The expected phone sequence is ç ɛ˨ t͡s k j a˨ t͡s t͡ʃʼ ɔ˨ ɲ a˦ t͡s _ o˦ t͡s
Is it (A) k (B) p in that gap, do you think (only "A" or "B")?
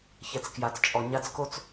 A